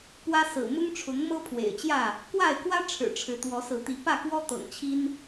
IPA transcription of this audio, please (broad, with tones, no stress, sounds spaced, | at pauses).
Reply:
p w ä˦ s ɹ̩˨˩ m ʊ˦ ŋ ʈ͡ʂʰ ʊ˨˦ ŋ m ɤ˦ pʰ w ḛ˨˩ ɪ̯ t͡ɕ j ä˥˨ | k w a˥˨ ɪ̯ k w ä˦ ʈ͡ʂʰ ɻ̩˨˩ ʈ͡ʂʰ ɻ̩˨˦ t̪ w ɔ˨˦ s ɹ̩˨˦ t̪ i˨˦ p ä˥˨ k w ɔ˦ t̪ ɤ̰˨˩ ŋ t͡ɕʰ i˦ n